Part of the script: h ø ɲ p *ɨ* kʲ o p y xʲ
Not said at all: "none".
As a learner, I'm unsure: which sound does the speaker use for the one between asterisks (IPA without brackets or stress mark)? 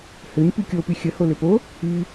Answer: y